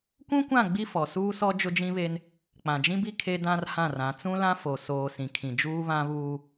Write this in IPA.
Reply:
kʷ ũ˦ kʷ ã˦˨ ɡ͡b i˦ f ɔ˨ s uː˦ s ɔ˦ d͡ʒ ʊ˦ d͡ʒ ĩ˦ β e˦ n | k͡p ã˨ d͡ʒ ĩ˦ b i˦ kʰ e˦ d ã˦ r h ã˦˨ r ã˨˦ t͡s ũ˦ l ã˦ f o˨ s oː˨ s ĩ˨ kʰ ĩ˨ d͡ʒ uː˦ β ã˦ β uː˦

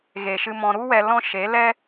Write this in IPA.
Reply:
ɣ e˨ ʃ ɨ˧ m ɔ̃˧ ɾ u˦ w ɛ˧ l ɔ̃˦ ʃ e˨˦ l ɛ˦

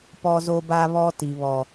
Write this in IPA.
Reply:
p ɔ˦ z o˦ b a˦ β ɔ˦ t i˨ β ɔ˨

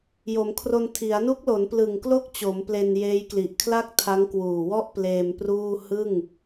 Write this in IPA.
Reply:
j o˩˦ m kʰ r o˧ n tʰ i˩˦ a̯ n u˦˥ k̚ l o˩˦ n p l ɯ˨˩ ŋ k l o˥˩ k̚ t͡ɕ o˩˦ m p l e˧ n j eː˦˥ j k l i˨˩ ʔ kʰ l a˥˩ k̚ tʰ a˦˥ ŋ k w uː˨˩ w ɔ˥˩ ʔ p l eː˧ m p r uː˥˩ h ɯ˥˩ ŋ

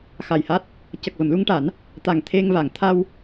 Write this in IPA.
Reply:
x a˨˩ j h a˦˥ t̚ | c ə˨˩ k̚ v ə˨˩˨ m l u˧ ŋ ʈ a˨˩˦ n | t̪ a˨˩ ŋ t̪ʰ e˧ ŋ v a˨˩˨ ŋ t̪ʰ a˧ w

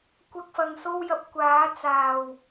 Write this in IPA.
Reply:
kʷ ɐ˥ k̚ f ɐ˧ ŋ s o˥ w j ɐ˧ p̚ kʷ aː˨˥ t͡s aː˨˩ w

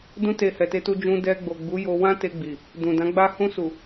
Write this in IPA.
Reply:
d ũ˧ t e˨ h ɛ˨ t e˧ t u˧ d͡ʒ ũ˧ d ɛ˧ ɡ͡b o˨ ɡ͡b u˨˦ j o˧ w ã˦ t e˧ ɡ͡b i˨ | d ũ˨ d ã˨˦ ɡ͡b a˦ h ũ˧ s u˨

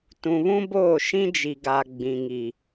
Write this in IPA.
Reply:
t ũ˨ β ũ˦ b oː˦˨ ʃ ĩ˦ d͡ʒ i˨ ɡ a˨ ɡ͡b ĩ˨ ŋ i˨

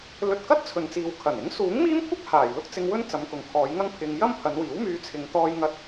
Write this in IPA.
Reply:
l ɵ˧ t̚ k ɐ˥ t̚ t͡sʰ ɵ˨ n t͡s iː˨ w kʰ ɐ˨˩ n ɪ˨˥ ŋ s uː˨˥ ŋ m iː˥ m kʷʰ ɐ˥ k̚ h aː˨˩ j l ʊ˥ k̚ t͡s ɪ˧ ŋ w ɵ˥ n t͡s ɐ˨˧ m k ʊ˨ ŋ kʰ ɔː˨˧ j ŋ ɐ˥ ŋ pʰ ɪ˧ ŋ j ɐ˥ m pʰ ɐ˨˧ n w iː˨˥ w m yː˧ t͡sʰ ɪ˨˧ ŋ t̪ ɔː˧ j ŋ ɐ˧ t̚

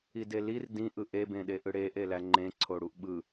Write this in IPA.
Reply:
i d e l i r d ĩ ʔ ɯ ʔ e b ẽ ɗ e ʔ ɯ ɽ e ʔ e l æ ŋ͡ǃ ẽ ǀʰ o ɽ u ʔ ɓ ɯ

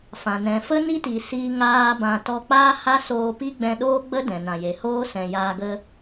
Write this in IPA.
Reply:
f ã˨ n ɛ̃˨ f ə˦ n i˦ t i˨ s iː˦ ŋ aː˦ b ã˧ t ɔ˧ k͡p aː˦ h a˦ s oː˧ p i˦ ɡ͡b ɛ̃˧ ɗ oː˦ ɡ͡b ə˦ d ɛ̃˨ n ã˨ j e˨ h oː˦ s ɛ̃˨ j aː˧ ɡ ə˦

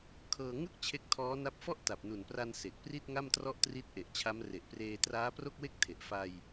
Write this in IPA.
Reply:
kʰ ɤː˧ ŋ ɯ˥˩ k̚ t͡ɕʰ e˦˥ k̚ tʰ ɔː˦˥ n a˦˥ p̚ f ɔ˥˩ ʔ t a˨˩ p̚ n u˨˩ n p r a˧ n s e˨˩ k̚ p r i˥˩ t̚ ŋ a˥˩ m t r ɔ˥˩ ʔ t r i˦˥ t̚ ʔ e˨˩ ʔ t͡ɕʰ a˦˥ m r e˨˩ ʔ p r eː˧ t r aː˦˥ p r o˥˩ k̚ w e˥˩ k̚ tʰ e˨˩ ʔ f a˧ j

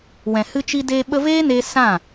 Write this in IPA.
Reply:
w ɛ̃˨ h ɨ˧ t͡ʃ i˧ d eː˧ ɓ ə˧ v eː˦ n e˧ s ã˦˨

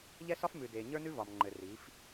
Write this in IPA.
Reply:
ʎ ɛ˦ s ɒ˦ f m ʉ˨ d e˨ ɲ ə˞˦ n ʉ˦ v ɒ˨ m ŋ͡ǃ ɘ˨ r i˨˦ f

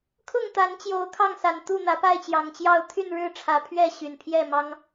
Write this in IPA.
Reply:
kʰ ʊ˥˨ ŋ t̪ a˨˦ n t͡ɕ j o˨˦ ʊ̯ kʰ ɑ˥˨ ŋ s a˨˩ n t̪ u˥˨ n̪ ä˨˦ p a˥˨ ɪ̯ t͡ɕ j ɑ˨˩ ŋ t͡ɕ j ɑ˥˨ ʊ̯ t̪ʰ y˥˨ n ɻ ɻ̩˥˨ ʈ͡ʂʰ ä˨˦ pʰ ɥ ɛ˥˨ ɕ y˨˩ n pʰ j ɛ˥˨ m ɑ˦ ŋ

